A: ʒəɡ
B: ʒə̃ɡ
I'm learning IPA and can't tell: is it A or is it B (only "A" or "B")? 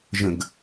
B